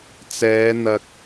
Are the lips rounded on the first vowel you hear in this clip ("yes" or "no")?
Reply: no